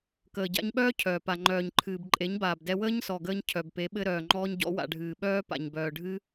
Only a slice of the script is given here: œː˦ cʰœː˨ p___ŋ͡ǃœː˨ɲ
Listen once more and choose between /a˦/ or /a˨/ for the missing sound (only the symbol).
a˨